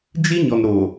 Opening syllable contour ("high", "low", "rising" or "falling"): high